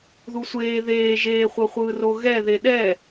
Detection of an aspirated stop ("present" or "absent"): absent